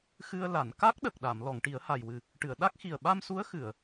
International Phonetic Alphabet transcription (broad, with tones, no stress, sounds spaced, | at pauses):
x ɨ˧ ə̯ l a˨˩˨ n k a˦˥ k̚ ɗ ə˨˩ k̚ ɗ a˨˩˨ m l ɔ˨˩˨ ŋ ʈ i˨˩˦ ə̯ h a˨˩ j w ɨ˨˩ | ʈ ɨ˨˩˨ ə̯ ɗ a˦˥ k̚ x i˨˩ ə̯ ɓ a˧ m s u˧˥ ə̯ x ɨ˨˩˨ ə̯